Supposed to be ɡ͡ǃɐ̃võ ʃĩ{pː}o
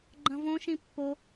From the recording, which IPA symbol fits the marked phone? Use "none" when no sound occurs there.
pː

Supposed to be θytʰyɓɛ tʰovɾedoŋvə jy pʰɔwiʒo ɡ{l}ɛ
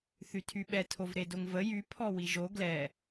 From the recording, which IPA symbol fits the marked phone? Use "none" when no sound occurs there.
l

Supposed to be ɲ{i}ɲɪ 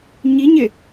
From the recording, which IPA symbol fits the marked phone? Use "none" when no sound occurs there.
i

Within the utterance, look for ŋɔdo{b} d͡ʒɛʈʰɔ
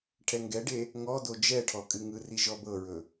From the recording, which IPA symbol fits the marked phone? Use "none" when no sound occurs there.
none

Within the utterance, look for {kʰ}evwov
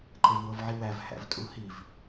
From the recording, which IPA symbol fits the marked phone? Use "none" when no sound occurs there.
ǃ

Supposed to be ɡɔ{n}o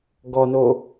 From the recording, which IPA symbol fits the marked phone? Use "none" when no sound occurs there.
n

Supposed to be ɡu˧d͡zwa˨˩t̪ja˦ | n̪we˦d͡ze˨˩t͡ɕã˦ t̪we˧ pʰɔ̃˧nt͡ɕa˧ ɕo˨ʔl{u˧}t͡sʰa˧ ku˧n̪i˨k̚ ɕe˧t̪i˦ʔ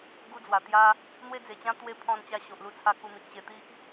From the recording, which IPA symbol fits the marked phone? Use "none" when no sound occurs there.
u˧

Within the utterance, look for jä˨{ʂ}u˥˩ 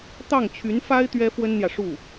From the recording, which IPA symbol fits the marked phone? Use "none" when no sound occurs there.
ʂ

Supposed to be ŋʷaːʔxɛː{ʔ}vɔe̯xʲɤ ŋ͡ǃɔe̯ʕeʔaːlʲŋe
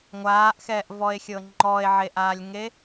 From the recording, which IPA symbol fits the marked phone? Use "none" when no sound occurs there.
ʔ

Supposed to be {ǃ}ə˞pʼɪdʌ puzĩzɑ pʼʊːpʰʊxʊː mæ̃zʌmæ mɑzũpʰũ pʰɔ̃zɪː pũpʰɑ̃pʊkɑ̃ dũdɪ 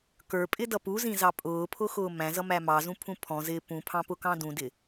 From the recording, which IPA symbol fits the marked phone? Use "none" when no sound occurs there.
k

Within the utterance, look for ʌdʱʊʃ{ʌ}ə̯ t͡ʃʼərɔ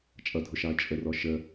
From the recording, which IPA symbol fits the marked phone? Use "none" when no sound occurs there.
ɑ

